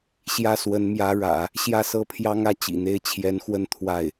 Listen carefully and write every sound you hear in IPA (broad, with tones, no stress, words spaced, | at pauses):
ɕjä˥swə˧˥nmjä˧˥ ɻä̰˨˩˦ | ɕjä˥˧sɤ˥˩pʰjɑ˥ŋä˥˩ t͡ɕḭ˨˩n̪e˥ɪ̯ t͡ɕʰjɛ˧˥nxwə˥˧n t̪ʰwa˥˩ɪ̯